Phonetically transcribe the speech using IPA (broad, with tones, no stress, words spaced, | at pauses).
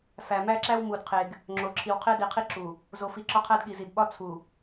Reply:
fæ˨mæ˦ǁæ˦w mu˨dqʰe˨ɡ | ŋ͡ǁo˨ ǁʰi˨wqʰe˦di˨qʰi˦ ǁu˨ | zo˨fi˨ ǁɒ˦qʰæ˦dɠi˨zi˨d ɓɒ˦ t͡sʰu˨